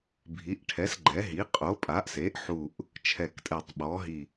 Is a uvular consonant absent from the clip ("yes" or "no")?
no